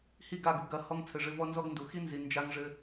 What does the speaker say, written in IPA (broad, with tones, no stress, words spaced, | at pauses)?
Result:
hi˦˨ɡa˦˨ɡu˨ɡɐ˦˨ hɔ˦ŋt͡sʰɘ˨ʐɘ˦ vɔ˦nzɔ˦ɡndu˨ xi˦nzi˨ nd͡ʒa˦ŋʐɘ˦